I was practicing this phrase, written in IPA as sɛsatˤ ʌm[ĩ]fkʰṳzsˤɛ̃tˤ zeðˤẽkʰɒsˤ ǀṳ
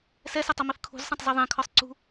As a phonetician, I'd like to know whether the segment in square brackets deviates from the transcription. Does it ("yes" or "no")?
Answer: yes